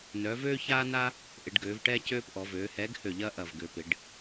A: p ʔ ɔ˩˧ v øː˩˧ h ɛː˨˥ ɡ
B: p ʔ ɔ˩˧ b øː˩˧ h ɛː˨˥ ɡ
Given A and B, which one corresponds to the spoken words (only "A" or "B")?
A